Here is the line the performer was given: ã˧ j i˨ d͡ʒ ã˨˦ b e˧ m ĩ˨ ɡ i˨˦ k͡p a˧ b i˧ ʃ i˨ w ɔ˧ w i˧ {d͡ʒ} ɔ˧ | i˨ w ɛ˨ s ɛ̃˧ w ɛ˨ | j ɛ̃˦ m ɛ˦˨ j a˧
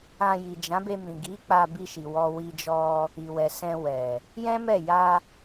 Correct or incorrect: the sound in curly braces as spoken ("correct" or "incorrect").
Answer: correct